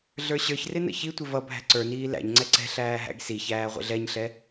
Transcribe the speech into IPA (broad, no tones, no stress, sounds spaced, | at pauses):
ɮ ə˞ ɕ ə˞ ç r ɪ n ə̰ ç i tʷ ɪ v ʌ bʱ æ̤ ǀ ə˞ n iː l æ̰ ɲ ŋ͡ǀ ɛ ǀ ɛ̤ ɬ æː ɦ æ̰ ɡ s i ç æː ʁʷ ə̰ ɮ ɛ ɲ ɬ ɛ